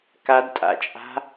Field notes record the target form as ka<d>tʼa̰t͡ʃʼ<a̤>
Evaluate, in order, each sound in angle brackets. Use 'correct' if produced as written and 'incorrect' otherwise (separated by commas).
correct, correct